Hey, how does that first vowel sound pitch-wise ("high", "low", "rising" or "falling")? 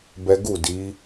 high